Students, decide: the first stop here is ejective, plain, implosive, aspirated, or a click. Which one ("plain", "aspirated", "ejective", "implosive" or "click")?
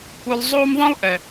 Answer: plain